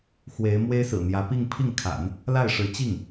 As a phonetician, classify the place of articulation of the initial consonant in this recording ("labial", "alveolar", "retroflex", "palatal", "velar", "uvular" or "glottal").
velar